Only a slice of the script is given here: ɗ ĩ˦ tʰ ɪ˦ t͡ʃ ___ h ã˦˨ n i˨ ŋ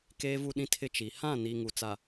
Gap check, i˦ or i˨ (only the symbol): i˨